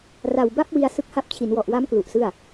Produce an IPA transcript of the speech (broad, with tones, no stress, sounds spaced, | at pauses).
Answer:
r a˨˩ w b a˥˩ p̚ w i˧ a̯ s ɯ˦˥ k̚ h a˦˥ p̚ t͡ɕʰ i˩˦ n w ɔ˨˩ ʔ w a˦˥ m k l u˨˩ ʔ s ɯ˥˩ a̯